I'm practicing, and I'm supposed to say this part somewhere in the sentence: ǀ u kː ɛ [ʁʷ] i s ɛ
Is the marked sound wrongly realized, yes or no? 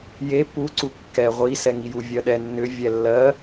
no